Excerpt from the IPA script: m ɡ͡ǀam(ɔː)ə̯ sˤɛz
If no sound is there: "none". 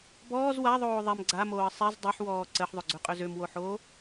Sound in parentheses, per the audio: oː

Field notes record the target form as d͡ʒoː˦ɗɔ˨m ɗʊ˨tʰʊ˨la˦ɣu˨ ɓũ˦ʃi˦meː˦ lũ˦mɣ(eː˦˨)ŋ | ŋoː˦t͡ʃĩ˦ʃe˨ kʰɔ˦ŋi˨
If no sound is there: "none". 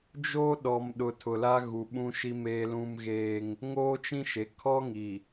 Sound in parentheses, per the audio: eː˦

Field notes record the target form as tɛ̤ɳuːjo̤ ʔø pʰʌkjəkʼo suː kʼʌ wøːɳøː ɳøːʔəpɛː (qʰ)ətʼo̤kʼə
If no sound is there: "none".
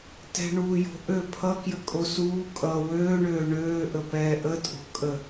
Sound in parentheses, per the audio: ʔ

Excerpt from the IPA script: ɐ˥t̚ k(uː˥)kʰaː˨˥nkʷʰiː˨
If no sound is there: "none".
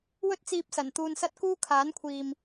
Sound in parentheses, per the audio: uː˥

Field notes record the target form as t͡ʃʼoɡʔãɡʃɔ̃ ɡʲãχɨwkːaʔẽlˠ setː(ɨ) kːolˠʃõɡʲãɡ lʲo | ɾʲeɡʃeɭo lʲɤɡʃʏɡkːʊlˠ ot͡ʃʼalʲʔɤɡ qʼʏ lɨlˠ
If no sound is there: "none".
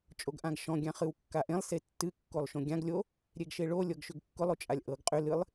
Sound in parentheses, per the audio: ɨ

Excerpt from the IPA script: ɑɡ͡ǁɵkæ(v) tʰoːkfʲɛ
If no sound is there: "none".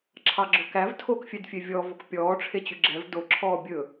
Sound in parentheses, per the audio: v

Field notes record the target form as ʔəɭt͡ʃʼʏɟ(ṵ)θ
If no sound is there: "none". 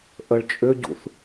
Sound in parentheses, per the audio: ṵ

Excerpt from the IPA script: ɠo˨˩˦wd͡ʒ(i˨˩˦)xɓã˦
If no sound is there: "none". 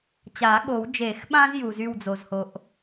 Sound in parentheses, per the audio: e˨˩˦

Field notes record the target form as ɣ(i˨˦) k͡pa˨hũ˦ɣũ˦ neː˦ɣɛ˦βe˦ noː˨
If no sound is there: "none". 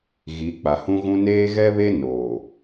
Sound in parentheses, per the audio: i˨˦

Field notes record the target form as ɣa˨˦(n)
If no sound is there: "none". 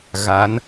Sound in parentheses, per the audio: n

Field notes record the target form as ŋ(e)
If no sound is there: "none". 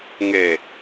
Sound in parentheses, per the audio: e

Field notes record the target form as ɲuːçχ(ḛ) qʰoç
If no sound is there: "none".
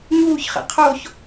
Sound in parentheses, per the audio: ḛ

